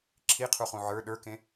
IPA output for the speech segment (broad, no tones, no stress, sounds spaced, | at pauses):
ǁʰ i qʰ u χ ũ ʕ ə˞ ɗ ə˞ k ẽ